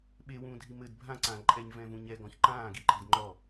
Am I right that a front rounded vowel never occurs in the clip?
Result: yes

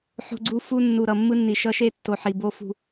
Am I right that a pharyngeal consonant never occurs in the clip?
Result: no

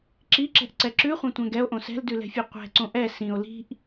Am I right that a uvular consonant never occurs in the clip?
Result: no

